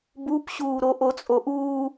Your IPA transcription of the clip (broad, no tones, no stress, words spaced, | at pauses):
bupɕuːɾo ʔot͡sʼoʔuː